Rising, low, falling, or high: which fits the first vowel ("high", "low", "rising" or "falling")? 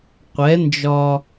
rising